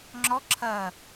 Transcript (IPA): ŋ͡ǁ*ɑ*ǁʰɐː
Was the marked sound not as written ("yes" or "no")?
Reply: yes